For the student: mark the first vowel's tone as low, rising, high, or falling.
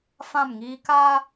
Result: falling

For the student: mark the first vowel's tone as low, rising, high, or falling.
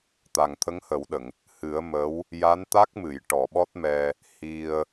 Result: low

